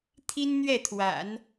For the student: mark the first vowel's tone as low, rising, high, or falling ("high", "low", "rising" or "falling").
high